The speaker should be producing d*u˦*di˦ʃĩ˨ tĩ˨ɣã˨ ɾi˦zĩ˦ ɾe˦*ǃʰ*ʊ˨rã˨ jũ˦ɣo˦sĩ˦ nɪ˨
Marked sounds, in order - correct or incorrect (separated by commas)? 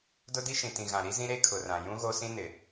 incorrect, incorrect